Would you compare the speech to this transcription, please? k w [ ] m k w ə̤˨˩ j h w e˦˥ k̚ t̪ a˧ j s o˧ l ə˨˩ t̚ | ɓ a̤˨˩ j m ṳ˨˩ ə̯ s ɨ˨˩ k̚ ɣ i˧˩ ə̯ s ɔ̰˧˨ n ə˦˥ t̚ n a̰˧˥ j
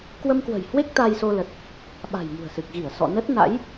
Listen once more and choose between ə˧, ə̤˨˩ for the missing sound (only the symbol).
ə˧